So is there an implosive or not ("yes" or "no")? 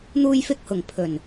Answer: no